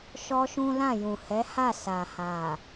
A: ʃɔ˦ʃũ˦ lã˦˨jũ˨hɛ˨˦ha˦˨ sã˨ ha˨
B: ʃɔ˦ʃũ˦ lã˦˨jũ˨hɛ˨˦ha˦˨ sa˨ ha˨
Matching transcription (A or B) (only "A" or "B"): B